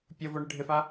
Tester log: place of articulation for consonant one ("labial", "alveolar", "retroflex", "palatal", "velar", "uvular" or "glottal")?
labial